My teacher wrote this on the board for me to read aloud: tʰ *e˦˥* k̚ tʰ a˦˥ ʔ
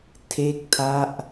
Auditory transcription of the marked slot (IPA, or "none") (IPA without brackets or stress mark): e˦˥